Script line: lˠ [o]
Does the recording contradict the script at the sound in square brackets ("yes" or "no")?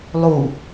yes